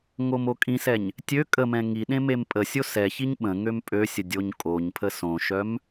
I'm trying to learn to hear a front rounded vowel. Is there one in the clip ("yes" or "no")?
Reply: yes